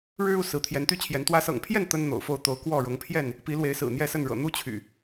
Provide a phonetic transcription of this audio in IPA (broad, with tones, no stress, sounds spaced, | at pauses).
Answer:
ɻ ɻ̩˦ u˥˨ s ɹ̩˨˦ t̪ʰ j ɛ˨˦ n t̪ y˦ t͡ɕʰ j ɛ˨˦ n t̪ w ä˨˦ s ɤ̰˨˩ ŋ pʰ j ɛ˥˨ n t̪ ə˦ n n̪ o̰˨˩ ʊ̯ f o˥˨ ʊ̯ t̪ o˨˦ ʊ̯ k w ɔ˥˨ ɻ ʊ˨˦ ŋ pʰ j ɛ˥˨ n | p i˨˦ l w e˨˦ ɪ̯ s ɹ̩˨˩ n̪ j ɛ˥˨ s ə˥˨ n ɻ ɤ̰˨˩ n̪ u˦ t͡ɕʰ y̰˨˩